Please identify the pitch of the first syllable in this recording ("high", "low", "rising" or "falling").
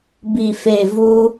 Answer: low